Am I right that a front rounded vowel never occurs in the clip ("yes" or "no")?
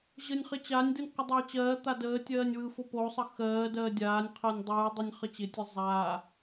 yes